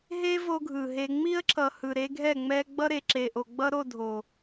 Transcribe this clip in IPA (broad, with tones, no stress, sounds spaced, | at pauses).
ɦ e˦ v o˦ ɡʱ ɯ˨ ɦ e˦ ŋ͡m i˦ ə̯ ǁ ʌ˨ h ɯ˨ ɾ e˦ ɡʱ ɛ˦˨ ŋ͡m ɛ˦ ɡ͡b ʌ˦ ɾ e˨ ǁ e˨ ʔ o˨ ɡ͡b ʌ˦ ɾ o˦˨ dʱ o˨